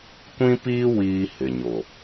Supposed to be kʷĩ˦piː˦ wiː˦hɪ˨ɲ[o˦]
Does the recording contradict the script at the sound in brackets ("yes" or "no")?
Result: yes